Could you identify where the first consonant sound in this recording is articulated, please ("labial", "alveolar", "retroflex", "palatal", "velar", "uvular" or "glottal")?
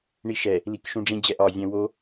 retroflex